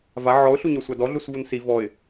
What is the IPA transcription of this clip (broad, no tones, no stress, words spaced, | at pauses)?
va ʕɔʊ̯ɬuɲɔsʷa dɔɮusvun si vɔɪ̯